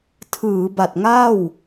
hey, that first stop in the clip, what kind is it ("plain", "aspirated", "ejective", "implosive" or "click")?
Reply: aspirated